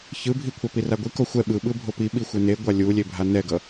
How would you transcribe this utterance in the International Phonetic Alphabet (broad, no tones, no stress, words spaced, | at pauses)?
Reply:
çɯbʱi kʷʰapiraɡʷi koxʷɛ ɓɯɓɯ bʱopi ɓixʷɛne ɡʷalʲulʲe bʱanɛɡʌ